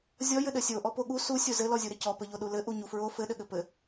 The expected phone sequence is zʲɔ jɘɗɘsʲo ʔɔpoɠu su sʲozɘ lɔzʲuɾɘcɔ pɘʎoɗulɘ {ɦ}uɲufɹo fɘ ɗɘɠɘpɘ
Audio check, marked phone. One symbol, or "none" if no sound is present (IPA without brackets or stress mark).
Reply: ʔ